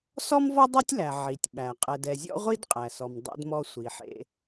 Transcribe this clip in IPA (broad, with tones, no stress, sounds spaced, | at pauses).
s ɔ˥ m v ɔ˥ dˤ e˥ tʲ l æ˩ ʕ i˩ tʲ ɓ æ˩ qʼ ɛ˩ d ɛ˩ zʲ ɔ̰˥ ʁʷ i˥ d qʼ æ˩ s ɔ˩ m dˤ ḛ˧ d m ɔ˧ sʷ i˩ ħ ḛ˧